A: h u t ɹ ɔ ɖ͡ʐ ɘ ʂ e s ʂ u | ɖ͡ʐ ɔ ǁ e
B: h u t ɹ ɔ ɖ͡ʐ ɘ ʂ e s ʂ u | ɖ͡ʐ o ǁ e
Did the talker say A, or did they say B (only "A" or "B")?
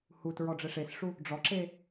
A